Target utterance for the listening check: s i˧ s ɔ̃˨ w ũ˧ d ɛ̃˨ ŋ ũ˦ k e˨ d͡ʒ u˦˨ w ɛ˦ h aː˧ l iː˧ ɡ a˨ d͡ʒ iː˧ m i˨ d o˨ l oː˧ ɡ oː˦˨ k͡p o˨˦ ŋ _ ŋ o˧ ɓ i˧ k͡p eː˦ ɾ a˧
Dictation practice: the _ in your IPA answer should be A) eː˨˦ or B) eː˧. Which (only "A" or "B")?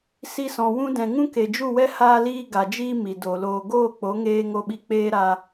B